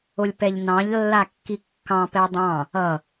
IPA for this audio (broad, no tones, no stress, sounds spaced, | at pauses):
o lʲ p ɛ ʎ n ɑ̃ ʎ lː a kː i kː ɑ̃ p ɛ dˤ ɑ̃ | ʌ